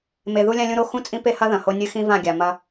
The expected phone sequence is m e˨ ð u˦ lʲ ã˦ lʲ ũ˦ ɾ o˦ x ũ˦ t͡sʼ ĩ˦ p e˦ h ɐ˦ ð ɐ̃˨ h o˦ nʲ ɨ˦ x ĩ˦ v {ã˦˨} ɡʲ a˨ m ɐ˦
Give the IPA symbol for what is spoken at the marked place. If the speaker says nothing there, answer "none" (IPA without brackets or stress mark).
ã˦˨